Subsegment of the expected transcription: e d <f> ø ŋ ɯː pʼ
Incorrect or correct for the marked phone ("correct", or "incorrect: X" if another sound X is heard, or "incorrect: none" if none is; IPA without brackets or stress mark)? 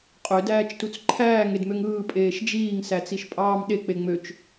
incorrect: m